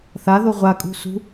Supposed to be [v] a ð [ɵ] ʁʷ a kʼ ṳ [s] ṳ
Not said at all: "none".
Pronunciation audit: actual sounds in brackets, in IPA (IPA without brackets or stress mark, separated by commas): θ, o, s